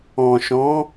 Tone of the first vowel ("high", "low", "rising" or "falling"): low